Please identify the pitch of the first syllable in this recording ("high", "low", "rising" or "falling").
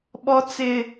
high